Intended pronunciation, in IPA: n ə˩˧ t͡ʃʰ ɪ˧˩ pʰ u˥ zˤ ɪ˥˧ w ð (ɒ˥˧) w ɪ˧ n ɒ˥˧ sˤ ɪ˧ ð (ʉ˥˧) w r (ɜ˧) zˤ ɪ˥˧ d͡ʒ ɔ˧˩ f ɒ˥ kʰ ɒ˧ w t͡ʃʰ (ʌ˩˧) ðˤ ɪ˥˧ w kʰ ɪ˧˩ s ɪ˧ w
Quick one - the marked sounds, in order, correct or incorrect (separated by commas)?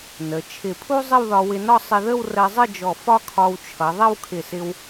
incorrect, incorrect, correct, correct